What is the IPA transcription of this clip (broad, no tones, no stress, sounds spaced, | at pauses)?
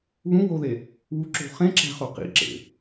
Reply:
β ũ w o ð e | w u ǁ o̤ χ ẽ ǁ æ̤ χ o q ḭ ǁ ḛ